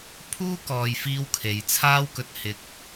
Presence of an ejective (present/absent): absent